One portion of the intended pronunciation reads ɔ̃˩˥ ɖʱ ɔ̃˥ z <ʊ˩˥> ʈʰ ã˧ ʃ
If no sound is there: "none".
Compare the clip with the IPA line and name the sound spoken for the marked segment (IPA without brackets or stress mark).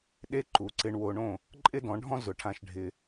ʊ˩˥